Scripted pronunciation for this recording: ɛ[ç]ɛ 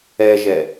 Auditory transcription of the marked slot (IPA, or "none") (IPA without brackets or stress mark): ʒ